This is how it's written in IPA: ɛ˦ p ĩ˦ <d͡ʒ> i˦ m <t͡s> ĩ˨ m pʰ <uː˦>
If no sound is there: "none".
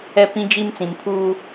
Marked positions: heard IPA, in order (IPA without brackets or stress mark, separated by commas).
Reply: d͡ʒ, t͡s, uː˦